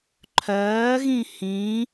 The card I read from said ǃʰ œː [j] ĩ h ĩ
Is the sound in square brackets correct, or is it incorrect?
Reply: incorrect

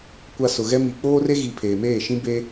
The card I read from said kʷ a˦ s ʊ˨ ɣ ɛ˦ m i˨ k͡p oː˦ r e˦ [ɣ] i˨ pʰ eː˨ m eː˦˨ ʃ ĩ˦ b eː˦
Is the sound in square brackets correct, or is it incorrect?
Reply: correct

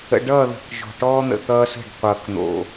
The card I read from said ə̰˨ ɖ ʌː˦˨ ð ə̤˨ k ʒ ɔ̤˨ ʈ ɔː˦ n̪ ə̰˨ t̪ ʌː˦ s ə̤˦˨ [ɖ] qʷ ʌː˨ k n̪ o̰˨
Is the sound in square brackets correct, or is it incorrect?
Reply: correct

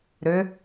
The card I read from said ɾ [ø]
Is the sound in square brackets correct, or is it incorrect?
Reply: correct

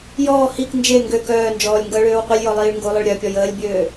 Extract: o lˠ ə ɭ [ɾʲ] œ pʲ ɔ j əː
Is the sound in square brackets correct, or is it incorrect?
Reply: correct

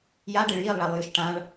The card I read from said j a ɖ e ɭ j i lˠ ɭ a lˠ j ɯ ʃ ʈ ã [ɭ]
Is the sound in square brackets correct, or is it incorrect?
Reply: correct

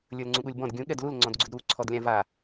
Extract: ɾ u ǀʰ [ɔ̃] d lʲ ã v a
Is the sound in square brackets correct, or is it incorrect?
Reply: incorrect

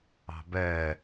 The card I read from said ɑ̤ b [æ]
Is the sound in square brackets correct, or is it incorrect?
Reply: incorrect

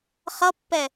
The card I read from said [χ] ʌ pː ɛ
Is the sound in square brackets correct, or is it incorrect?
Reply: correct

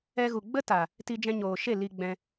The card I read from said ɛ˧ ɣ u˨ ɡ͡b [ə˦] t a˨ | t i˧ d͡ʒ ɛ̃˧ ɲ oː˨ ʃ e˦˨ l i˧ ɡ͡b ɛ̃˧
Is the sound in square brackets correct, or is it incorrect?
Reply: correct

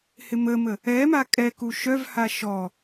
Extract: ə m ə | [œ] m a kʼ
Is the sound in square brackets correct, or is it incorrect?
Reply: incorrect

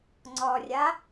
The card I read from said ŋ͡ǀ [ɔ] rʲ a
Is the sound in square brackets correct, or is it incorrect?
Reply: correct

